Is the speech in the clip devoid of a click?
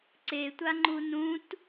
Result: no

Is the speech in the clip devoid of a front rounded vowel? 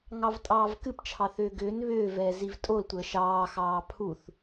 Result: no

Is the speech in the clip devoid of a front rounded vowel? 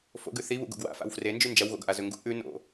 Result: yes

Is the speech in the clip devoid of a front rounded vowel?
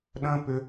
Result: no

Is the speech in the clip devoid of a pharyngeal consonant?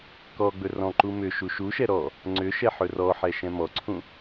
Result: no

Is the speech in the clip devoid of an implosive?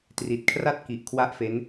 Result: yes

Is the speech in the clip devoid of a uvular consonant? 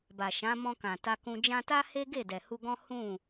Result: yes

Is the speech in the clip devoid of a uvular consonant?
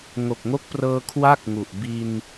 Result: yes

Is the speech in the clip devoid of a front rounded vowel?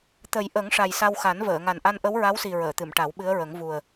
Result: yes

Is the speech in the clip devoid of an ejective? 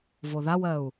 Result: yes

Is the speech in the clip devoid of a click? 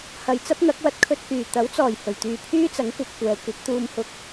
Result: yes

